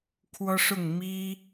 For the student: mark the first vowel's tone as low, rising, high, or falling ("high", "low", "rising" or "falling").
high